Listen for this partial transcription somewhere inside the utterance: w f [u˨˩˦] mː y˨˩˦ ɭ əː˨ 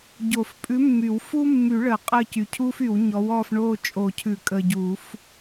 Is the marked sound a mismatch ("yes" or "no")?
yes